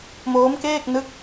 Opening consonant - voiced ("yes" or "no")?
yes